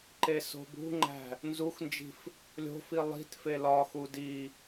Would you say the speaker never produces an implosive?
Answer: yes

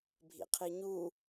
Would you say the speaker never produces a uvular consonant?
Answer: no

